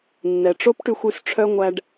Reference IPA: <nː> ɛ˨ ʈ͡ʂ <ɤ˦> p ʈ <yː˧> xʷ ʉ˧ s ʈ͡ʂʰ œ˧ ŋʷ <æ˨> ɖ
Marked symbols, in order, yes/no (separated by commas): yes, no, no, no